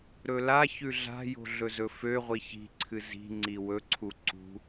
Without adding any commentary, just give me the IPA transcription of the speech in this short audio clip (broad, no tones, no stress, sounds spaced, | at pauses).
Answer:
ɾ ɵ l a ç ʉ ɮ a̤ j o̤ ɮ ɵ z ɵ f ø ʁʷ i ç i̤ ǀʰ ɨ z i̤ ŋ͡ǀ i w ɵ ǀʰ u ǀ ṳ